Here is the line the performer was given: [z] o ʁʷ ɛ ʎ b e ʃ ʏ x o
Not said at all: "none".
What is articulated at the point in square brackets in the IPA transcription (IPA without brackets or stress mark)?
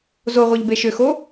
z